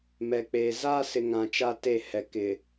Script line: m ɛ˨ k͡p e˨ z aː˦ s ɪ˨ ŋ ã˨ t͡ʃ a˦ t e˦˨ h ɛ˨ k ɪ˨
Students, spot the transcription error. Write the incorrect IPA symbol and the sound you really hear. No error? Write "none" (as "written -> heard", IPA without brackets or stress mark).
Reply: none